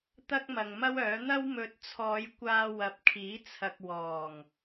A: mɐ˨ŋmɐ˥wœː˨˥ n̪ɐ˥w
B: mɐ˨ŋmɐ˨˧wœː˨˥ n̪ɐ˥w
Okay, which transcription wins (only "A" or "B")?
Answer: A